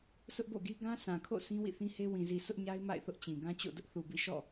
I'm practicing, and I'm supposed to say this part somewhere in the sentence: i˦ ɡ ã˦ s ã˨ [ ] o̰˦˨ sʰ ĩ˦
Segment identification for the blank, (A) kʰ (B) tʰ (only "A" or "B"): A